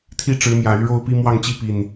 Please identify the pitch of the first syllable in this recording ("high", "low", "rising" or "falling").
falling